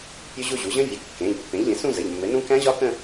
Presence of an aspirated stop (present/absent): absent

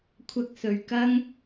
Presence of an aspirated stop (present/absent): present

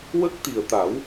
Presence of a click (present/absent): absent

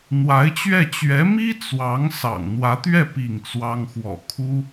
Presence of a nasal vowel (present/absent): absent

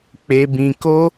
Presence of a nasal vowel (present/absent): present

